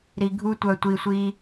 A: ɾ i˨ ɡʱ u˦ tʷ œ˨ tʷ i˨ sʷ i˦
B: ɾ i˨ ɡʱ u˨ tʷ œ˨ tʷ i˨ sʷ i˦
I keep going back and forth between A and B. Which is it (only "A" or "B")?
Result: A